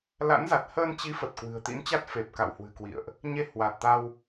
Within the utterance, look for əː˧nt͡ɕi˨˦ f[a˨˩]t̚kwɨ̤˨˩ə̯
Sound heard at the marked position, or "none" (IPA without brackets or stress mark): ə˨˩